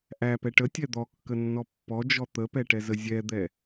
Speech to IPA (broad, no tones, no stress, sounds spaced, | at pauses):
ʔ æ p ɛ ʈ ə tʲ ɛ d̪ ɔ kː ə nː ɔ pː ɔ d͡ʒ ɔ t̪ ə p ɛ ʈ ɛ z ə zʲ ɛ d̪ ɛ